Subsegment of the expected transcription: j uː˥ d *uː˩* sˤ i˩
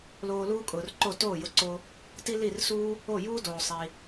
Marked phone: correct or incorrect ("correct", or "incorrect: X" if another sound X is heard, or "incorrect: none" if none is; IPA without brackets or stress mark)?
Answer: incorrect: oː˩